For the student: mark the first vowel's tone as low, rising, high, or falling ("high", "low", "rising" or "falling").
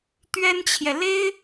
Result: high